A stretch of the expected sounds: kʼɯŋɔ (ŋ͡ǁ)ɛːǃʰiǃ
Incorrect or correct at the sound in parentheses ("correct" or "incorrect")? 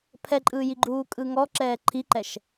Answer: incorrect